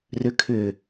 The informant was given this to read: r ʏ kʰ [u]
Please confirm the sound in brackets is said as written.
no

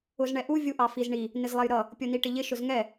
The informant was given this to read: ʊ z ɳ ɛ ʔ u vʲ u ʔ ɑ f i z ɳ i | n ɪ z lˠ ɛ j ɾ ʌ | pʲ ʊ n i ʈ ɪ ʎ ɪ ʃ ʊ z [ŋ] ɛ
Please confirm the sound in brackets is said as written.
yes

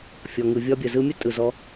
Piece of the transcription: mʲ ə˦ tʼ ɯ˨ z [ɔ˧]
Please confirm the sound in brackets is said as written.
yes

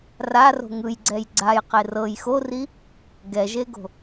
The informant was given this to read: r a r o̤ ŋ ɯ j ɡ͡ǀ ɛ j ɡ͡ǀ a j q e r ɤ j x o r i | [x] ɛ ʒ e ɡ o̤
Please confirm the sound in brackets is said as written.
no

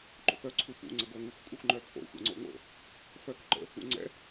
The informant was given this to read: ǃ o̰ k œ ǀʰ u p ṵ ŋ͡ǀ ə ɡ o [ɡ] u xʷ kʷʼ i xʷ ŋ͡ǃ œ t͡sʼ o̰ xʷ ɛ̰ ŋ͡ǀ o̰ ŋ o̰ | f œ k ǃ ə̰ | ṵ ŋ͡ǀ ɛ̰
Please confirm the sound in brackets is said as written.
no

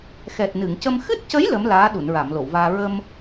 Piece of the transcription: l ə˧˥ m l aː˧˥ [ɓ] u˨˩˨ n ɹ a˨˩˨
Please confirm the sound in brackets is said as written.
no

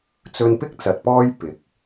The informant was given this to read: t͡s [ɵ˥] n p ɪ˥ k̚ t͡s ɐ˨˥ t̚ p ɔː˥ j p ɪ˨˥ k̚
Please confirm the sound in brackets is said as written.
no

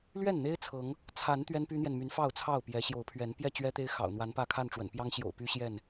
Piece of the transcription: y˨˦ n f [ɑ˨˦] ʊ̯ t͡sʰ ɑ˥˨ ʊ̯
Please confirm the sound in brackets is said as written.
no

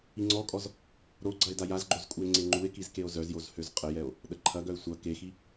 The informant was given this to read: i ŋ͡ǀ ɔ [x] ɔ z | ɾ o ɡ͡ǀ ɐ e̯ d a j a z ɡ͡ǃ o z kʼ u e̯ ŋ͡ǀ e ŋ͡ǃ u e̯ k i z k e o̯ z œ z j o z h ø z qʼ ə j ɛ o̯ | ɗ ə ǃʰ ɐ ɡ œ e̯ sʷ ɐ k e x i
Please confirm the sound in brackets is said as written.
no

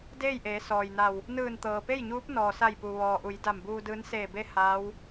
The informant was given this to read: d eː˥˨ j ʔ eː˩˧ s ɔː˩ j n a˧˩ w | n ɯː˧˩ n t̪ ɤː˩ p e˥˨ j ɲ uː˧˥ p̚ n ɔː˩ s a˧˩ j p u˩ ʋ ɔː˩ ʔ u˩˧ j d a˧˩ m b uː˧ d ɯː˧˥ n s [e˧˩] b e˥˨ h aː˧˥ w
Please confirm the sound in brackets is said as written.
no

